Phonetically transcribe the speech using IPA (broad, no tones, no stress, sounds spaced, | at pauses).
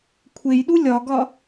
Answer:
kʷʰ e j ɗ u lʲ ɒ ɡ ɒ